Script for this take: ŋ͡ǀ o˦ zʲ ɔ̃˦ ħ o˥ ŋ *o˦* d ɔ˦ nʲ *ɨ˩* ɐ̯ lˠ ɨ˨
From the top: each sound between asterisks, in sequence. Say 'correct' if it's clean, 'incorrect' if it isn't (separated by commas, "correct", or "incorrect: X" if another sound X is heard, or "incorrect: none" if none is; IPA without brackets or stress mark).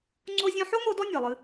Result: correct, correct